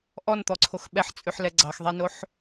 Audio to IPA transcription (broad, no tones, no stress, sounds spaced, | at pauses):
ʔ ɔ n t̪ ɔ ǀʰ o x ɓ ɛ ħ t͡sʼ ʉ ħ l ɛ ɡ͡ǀ ɑ x ðˤ ɛ n o ħ